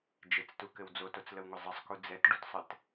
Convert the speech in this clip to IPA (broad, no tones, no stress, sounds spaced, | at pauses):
d͡ʒ ɘ t͡s t u k ɘ w d͡z o t o t͡s l ə w ŋʷ ɘ zˤ ə sˤ k u d͡z ɛ t ɖ u t sˤ ɘ t